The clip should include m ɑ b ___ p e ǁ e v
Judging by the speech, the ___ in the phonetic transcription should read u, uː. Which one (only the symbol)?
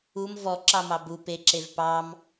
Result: u